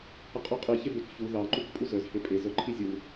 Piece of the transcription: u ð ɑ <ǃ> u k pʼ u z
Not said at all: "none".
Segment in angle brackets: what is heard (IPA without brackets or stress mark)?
ǃ